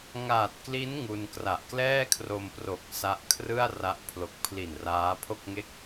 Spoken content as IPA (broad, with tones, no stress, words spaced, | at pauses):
ŋaː˨˩t̚kli˦˥n ŋu˧nkra˨˩ʔ klɛː˥˩kʰro˧mpro˨˩k̚ sa˦˥ʔkʰrɯ˥˩a̯ra˦˥ʔ pʰlo˨˩k̚pʰli˨˩n raː˦˥pʰo˥˩k̚ŋe˥˩k̚